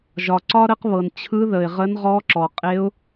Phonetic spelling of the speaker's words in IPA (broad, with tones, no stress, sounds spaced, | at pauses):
ʒ ɒ˩ ǀ ɒ˥ ɾ ə˧˥ q β ɤ˩ n t͡ɕʰ ɯ˧˥ ð ə˩ ɪ̯ ʁ ə˧˥ n ʁ ɔ˧˥ ǁ ɔ˩ qʼ e˧˥ ʊ̯